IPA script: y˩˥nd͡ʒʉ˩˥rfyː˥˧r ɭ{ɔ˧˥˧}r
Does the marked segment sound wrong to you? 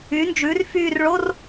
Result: yes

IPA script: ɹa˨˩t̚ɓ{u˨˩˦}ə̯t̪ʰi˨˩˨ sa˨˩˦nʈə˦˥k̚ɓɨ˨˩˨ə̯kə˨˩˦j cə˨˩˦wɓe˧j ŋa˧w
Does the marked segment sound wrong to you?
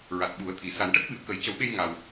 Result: no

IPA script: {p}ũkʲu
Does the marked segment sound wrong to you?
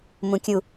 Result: yes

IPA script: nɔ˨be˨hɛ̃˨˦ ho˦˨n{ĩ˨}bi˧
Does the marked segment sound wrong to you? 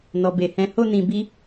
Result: no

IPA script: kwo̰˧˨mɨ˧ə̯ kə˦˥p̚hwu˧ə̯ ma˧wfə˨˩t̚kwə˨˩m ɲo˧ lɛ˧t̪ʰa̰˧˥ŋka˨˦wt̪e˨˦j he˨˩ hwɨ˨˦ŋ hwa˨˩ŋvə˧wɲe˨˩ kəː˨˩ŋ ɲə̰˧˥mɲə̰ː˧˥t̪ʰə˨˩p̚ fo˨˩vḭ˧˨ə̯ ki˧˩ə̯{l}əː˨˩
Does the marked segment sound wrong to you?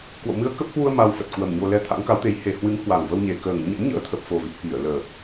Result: no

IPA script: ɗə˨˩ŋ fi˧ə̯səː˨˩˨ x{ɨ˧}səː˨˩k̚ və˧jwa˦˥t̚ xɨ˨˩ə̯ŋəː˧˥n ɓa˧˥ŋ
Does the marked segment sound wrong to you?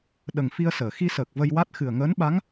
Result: yes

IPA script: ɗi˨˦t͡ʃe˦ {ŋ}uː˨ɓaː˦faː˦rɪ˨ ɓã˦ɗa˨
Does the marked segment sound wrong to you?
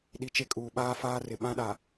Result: yes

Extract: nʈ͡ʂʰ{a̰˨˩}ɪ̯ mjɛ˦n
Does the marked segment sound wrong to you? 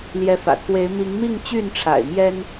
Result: no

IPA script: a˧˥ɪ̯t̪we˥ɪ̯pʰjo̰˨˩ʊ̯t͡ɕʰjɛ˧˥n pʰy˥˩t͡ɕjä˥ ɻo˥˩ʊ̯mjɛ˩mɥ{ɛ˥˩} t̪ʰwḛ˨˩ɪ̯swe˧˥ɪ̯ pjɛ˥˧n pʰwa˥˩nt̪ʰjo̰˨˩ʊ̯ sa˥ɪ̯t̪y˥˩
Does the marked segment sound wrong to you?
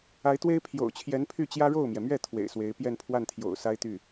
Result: no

